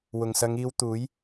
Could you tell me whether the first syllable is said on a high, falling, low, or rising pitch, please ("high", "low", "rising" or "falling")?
low